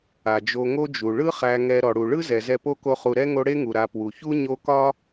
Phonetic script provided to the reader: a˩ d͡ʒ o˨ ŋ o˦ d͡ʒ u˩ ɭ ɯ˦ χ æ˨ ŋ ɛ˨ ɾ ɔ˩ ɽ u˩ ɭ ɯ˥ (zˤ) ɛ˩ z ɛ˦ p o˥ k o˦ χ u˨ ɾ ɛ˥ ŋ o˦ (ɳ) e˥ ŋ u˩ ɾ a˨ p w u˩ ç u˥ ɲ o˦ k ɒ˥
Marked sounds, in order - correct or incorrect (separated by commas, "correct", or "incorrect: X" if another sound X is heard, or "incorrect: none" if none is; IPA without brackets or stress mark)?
incorrect: z, incorrect: ɽ